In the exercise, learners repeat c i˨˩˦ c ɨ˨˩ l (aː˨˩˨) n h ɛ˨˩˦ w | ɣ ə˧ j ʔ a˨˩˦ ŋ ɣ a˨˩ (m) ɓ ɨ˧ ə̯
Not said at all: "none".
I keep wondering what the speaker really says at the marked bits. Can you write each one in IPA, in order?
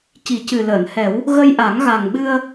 əː˨˩˨, ŋ

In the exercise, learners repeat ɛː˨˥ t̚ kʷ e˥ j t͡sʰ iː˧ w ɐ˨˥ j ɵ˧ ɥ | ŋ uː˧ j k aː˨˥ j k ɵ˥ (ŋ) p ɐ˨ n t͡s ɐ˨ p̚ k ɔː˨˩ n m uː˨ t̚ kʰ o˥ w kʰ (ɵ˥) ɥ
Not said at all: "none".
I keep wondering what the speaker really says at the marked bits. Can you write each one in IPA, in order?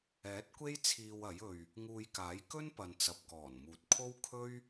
n, ɵ˥

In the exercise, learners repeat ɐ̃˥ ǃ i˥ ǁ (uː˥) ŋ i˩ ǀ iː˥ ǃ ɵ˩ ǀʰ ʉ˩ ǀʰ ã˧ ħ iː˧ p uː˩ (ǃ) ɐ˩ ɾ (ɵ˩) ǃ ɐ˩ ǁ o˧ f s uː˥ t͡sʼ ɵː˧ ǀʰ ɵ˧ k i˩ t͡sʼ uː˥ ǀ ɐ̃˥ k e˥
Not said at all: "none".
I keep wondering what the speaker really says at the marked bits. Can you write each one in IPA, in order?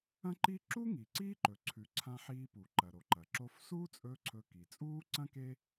u˥, ǃ, o˩

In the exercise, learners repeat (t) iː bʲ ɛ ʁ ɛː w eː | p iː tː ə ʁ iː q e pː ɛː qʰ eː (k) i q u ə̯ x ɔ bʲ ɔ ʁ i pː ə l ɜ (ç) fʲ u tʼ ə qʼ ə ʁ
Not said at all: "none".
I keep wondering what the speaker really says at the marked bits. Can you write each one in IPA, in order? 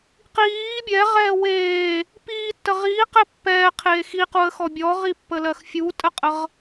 q, x, x

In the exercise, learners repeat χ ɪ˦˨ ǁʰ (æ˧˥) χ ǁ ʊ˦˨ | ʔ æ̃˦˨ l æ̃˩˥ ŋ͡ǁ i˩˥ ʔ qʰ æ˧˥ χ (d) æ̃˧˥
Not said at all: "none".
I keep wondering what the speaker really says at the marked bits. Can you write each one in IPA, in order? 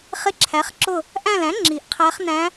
æ˩˥, n

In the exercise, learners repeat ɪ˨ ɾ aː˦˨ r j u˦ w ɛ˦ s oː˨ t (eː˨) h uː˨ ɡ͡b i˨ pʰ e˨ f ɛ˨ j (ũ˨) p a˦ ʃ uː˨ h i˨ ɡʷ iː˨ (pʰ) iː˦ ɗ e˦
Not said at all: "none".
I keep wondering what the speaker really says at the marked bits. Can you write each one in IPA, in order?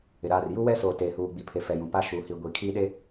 eː˨, ũ˨, kʰ

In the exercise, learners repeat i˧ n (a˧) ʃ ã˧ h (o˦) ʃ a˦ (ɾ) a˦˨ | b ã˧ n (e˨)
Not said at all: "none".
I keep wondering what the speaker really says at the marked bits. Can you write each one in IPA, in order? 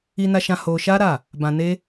a˧, o˧, ɾ, e˦

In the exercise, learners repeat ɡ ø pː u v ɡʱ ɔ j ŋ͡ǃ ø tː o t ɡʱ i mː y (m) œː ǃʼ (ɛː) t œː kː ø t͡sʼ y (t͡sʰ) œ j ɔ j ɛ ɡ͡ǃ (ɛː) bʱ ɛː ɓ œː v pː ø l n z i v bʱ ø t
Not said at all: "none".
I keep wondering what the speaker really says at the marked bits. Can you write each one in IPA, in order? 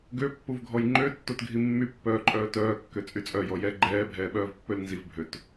pː, œː, t͡sʼ, ɛː

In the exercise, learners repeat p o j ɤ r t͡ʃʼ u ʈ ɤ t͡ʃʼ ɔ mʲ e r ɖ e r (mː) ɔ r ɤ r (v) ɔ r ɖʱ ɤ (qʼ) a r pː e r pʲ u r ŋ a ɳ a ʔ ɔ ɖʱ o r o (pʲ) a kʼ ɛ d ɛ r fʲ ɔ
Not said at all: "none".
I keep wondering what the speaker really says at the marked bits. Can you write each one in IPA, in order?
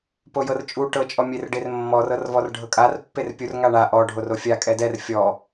mː, v, kʼ, fʲ

